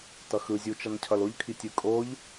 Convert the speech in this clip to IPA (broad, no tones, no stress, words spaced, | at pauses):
tʌxɯ zʲu t͡ʃʌncʰʌloʎ kʰitʲɯkʼoʎ